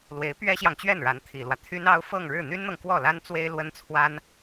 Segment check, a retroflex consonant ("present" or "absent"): present